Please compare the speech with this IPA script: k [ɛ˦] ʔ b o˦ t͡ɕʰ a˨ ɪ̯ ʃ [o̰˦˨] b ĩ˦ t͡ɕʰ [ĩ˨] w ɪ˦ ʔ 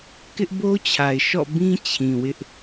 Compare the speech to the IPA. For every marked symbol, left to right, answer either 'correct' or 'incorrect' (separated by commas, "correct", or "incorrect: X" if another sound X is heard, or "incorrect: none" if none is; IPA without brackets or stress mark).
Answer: incorrect: ɪ˦, incorrect: ɔ̰˦˨, correct